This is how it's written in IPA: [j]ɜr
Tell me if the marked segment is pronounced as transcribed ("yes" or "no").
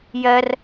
yes